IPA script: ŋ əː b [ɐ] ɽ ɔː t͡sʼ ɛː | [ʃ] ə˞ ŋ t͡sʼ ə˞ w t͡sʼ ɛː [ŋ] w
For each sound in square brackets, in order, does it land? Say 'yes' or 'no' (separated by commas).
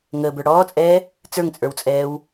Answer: no, no, no